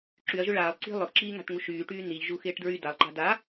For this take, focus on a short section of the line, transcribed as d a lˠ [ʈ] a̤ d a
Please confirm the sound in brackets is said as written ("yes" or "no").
no